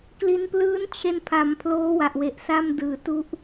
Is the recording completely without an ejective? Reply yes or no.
yes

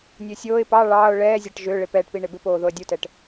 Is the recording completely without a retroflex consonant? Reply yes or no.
no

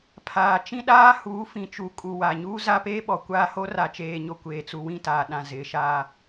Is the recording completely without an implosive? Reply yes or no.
no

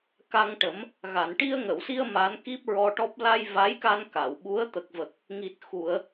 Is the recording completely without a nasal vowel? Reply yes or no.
yes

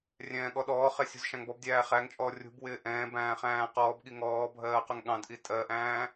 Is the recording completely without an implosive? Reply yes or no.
no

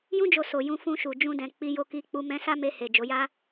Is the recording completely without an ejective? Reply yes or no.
yes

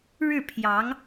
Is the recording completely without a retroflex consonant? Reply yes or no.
no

